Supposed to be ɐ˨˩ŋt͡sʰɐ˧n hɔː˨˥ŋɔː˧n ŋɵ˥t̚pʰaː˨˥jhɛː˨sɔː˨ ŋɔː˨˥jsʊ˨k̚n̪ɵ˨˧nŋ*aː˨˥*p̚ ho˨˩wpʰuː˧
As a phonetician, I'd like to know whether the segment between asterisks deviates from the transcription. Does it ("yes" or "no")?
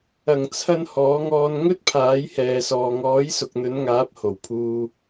no